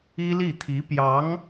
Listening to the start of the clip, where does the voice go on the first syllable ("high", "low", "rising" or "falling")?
high